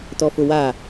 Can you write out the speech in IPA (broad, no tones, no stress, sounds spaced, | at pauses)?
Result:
t ɔ f ʊ w a